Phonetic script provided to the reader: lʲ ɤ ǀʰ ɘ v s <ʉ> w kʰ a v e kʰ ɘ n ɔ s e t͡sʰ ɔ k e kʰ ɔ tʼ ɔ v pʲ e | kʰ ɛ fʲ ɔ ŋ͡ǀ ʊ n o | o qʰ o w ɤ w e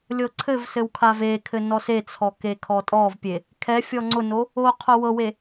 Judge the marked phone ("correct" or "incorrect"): incorrect